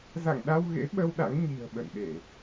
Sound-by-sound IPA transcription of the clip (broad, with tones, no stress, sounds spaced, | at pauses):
z a̰˧˨ ŋ ɗ a˧ w ɣ ḛ˧˥ ɓ ə˧ w ɗ a̰˧˥ ŋ ɲ i̤˨˩ ə̯ ɓ ə̰˧˨ n ɗ e˧˩˨